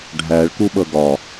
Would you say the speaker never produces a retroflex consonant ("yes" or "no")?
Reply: no